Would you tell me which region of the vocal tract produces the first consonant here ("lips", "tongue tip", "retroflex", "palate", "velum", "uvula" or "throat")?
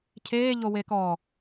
palate